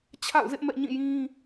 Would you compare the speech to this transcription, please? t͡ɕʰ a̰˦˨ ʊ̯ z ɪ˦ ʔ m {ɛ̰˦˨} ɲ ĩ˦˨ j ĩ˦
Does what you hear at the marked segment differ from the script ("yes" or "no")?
no